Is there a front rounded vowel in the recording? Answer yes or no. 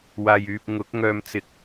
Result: yes